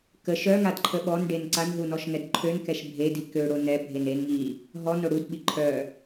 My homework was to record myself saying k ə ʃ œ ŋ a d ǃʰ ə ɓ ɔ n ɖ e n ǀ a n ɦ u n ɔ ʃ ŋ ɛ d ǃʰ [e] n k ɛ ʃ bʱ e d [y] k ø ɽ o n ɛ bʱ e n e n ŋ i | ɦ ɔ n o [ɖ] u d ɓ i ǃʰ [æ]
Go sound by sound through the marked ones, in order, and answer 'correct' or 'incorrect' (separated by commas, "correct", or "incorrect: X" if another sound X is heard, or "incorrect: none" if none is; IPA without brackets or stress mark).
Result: incorrect: ø, incorrect: i, incorrect: ɽ, incorrect: œ